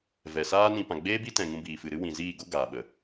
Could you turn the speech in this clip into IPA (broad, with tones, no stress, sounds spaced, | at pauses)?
v ɛ˨ s aː˦ n ĩ˧ p ã˨ ɡ͡b eː˦ b i˦ t ɛ̃˨ ŋ ũ˧ b iː˨ f ɨ˨ ɾ ɨ˦ w ĩ˧ z iː˦˨ ɡ o˦ ɡ aː˨ ɓ ə˨